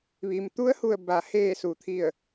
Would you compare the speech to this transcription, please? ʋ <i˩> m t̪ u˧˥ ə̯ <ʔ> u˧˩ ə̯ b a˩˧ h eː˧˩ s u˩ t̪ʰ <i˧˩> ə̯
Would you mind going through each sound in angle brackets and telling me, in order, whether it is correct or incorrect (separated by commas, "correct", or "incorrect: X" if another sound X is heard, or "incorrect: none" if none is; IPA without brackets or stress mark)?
correct, incorrect: h, correct